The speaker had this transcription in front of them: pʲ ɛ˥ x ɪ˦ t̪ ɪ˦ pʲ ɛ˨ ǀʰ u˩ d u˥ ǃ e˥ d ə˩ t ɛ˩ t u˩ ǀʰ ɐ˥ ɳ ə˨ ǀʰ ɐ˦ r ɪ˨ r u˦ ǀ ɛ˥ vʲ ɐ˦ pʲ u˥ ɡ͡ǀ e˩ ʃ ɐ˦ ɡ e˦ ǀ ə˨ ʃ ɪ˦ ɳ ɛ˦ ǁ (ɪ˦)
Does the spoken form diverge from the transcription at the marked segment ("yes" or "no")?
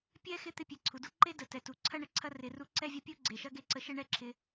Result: yes